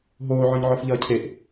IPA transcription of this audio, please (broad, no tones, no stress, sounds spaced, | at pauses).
ɦ oː ʕ ɔ̃ ɲ ʕ ɔ f ʎ ʌː cʰ e ʔ